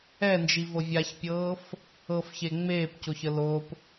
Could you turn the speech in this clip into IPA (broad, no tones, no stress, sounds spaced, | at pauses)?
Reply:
ɛ n d͡ʒ i v ɤ vʲ a ç pʲ ɤː f | ɤ f ç e ŋ͡m eː p c o ç ə l o p